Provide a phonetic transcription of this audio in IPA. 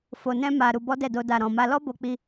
f o˧ n ɛ̃˦ m a˧ ɾ u˧ b ɔ˦ d ɛ˦˨ d o˧ d a˨ ɾ ɔ̃˨ m a˧ l ɔ˦ b o˧ k͡p i˧

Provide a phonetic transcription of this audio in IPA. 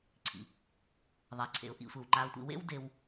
ǀʰ ḭ˩ | ðˤ ʌ˩ ɪ̯ ǀʰ ḛ˩ ʊ̯ ʔ ḭ˨ sʷ e˩ w ŋ͡ǃ a˨ ʊ̯ tʷ ḭ˨ w ḛ˦ w d e˨ w

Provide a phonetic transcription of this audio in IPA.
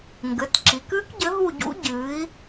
ŋ ɡ ɘ˩˧˩ t ǁ i˩˧ k ɨː˦˥ k ɟ ɘ˨˥ ɦ u˦˨ ɟ ṵ˦˥ ɟ ɨː˨˥ i̯

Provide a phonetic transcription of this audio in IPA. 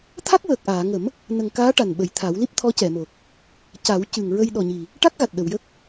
t̪ʰ a˦˥ k̚ w əː˨˩ k̚ ʔ aː˨˩˨ ŋ ə˨˩˦ m | n ə˨˩ ŋ k aː˧˥ ʈ a˨˩ n ɓ ə˨˩ j t̪ʰ a˨˩˦ w l i˦˥ p̚ t̪ʰ ɔ˧˥ c ɛ˨˩˨ m o˨˩ k̚ | c a˨˩˦ w c ɨ˨˩ ŋ ɹ ə˧ j ɗ ɔ˨˩ ɲ i˨˩ | ʈ a˦˥ k̚ ɣ a˨˩ t̚ ɗ ə˨˩˨ w j ə˦˥ k̚

